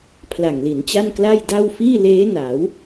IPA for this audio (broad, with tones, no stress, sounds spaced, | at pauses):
pʰ l a˨˩ ŋ l i˩˦ n t͡ɕ a˥˩ n k l a˥˩ j d a˥˩ w f iː˥˩ l eː˦˥ n a˩˦ w